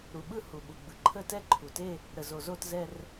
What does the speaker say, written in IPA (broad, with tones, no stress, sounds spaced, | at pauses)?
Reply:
ɾ u˩ ɓ ɯ˥˧ h u˩ ɓ u˩ ɡ͡b ɯ˩ ǃʰ ə˥˧ t ɛ˥˧ ǃʰ u˩ t e˥˧ | ɾ ə˩ z o˩ z o˥˧ t z ɛ˥˧ r